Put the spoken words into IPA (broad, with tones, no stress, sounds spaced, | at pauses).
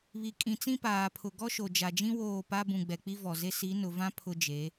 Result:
β i˨ kʼ ĩ˨ t͡s ĩ˦ p aː˨ pʰ ʊ˨ ɡ ɔ˦ ʃ o˨ d͡ʒ a˨ d͡ʒ ĩ˦ w oː˦˨ p a˦ b ũ˨ ɡ͡b ɛ˨ k͡p i˦ v ɔ˨ z e˦ s i˨˦ n ʊ˨ v ã˦ pʰ ʊ˦ d͡ʒ e˨˦